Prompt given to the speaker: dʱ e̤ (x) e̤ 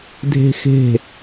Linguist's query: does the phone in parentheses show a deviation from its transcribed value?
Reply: no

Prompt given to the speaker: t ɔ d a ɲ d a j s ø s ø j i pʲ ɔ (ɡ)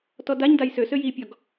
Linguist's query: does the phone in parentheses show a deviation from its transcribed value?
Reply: no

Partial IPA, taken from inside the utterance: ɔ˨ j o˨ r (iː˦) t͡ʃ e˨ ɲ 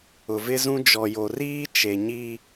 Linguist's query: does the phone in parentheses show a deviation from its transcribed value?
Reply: no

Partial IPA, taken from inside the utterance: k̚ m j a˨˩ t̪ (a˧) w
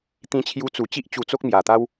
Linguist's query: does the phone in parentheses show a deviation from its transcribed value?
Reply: yes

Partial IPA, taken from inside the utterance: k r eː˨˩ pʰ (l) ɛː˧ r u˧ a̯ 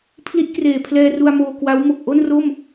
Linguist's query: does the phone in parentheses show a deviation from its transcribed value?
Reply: no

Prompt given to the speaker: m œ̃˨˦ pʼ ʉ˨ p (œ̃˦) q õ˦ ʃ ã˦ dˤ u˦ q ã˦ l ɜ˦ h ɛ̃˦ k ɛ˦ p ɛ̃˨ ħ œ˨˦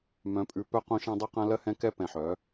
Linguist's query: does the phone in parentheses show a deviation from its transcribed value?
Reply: yes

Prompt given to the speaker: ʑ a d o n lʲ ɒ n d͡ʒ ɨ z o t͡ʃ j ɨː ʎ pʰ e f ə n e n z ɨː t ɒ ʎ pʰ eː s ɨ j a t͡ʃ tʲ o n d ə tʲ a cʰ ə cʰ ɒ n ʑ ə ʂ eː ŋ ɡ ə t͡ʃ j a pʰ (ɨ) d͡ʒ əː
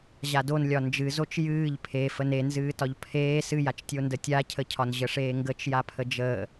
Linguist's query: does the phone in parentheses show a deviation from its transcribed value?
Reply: yes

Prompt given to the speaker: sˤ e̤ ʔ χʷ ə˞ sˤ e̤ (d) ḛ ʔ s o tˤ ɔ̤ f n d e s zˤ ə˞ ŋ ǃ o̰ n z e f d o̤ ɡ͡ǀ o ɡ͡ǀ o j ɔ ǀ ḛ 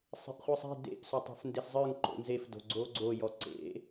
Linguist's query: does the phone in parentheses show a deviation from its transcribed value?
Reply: no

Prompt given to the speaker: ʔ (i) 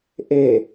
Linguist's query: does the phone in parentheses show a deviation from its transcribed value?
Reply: yes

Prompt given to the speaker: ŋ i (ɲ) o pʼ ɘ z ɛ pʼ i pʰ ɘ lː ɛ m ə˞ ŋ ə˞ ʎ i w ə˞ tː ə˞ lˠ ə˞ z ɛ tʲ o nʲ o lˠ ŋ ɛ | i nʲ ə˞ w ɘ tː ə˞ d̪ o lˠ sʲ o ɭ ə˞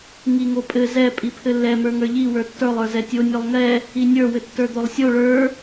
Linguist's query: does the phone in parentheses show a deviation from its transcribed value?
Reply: yes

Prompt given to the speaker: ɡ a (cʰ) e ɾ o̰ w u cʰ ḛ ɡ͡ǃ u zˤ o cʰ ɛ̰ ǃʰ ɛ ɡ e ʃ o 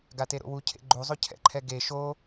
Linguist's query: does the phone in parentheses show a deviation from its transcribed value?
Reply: yes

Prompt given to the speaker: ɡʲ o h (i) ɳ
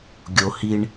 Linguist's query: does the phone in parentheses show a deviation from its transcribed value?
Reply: no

